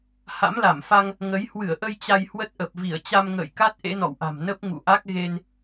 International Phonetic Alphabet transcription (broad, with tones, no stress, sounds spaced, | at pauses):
h a̰˧˥ m l a˧˩ m f a˧ ŋ | ŋ ə˨˦ j h w ɨ˧˩ ə̯ ʔ ə˧ j t͡ɕ a˧ j h w ə˦˥ t̚ ʔ ə˨˩ p̚ v i˧˩ ə̯ t͡ɕ a˧ m ŋ ə̰ː˧˨ j k a˦˥ t̚ ʔ ḛ˧˥ n ɔ̰˧˨ w ʔ a̤˨˩ m n ə˦˥ p̚ ŋ ṵ˧˨ ʔ a˦˥ k̚ ɣ e˧ n